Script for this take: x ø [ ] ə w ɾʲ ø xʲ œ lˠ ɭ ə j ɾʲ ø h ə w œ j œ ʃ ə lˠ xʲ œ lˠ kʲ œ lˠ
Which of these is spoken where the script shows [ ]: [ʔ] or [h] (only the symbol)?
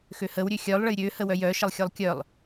h